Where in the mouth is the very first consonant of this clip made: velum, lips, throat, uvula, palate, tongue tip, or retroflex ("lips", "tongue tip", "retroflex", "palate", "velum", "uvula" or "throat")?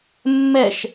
lips